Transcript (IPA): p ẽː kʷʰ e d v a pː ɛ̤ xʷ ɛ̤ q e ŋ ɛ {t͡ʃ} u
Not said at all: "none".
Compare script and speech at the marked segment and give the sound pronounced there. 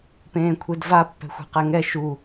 ʃ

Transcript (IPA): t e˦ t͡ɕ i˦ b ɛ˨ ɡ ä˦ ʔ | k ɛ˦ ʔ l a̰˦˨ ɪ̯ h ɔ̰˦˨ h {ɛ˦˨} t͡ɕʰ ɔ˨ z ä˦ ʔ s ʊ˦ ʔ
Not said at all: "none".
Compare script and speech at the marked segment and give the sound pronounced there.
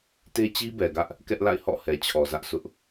ɛ˨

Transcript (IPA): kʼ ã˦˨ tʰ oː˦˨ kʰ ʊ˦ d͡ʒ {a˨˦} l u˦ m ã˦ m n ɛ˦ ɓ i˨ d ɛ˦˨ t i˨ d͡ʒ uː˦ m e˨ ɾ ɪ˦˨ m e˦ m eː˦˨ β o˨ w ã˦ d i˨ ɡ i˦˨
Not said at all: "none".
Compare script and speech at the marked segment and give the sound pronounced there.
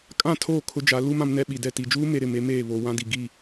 a˨˦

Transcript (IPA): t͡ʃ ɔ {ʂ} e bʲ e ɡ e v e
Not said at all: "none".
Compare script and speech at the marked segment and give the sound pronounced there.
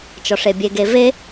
ʂ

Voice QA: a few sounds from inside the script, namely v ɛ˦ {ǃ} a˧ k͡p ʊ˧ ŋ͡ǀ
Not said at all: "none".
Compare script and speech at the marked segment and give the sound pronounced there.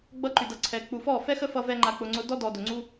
ŋ͡ǃ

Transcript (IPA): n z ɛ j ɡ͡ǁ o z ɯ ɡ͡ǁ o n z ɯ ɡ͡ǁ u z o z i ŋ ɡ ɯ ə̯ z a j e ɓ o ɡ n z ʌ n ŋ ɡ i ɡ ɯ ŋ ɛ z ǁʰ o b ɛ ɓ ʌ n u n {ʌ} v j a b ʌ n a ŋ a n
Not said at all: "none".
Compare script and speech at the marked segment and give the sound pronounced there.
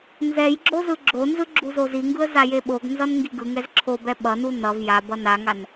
ʌ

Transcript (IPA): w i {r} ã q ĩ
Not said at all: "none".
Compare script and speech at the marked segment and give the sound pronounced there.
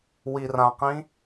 r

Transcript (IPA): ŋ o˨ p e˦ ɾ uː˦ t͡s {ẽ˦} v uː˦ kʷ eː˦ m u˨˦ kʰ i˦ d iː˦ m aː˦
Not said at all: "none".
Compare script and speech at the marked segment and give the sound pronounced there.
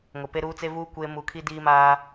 e˦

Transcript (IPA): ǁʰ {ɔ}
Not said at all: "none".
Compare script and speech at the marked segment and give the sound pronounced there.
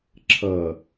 ʌ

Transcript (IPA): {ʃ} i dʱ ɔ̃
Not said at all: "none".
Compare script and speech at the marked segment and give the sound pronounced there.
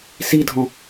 s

